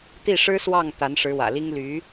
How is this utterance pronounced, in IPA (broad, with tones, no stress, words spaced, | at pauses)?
t̪i˥˩ʂɻ̩˥swɑ˥˩ŋ t̪a˧˥nʂɻ̩˧˥wä̰˨˩li˥ŋ ly˧˥